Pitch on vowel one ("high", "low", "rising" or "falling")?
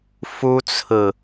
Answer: high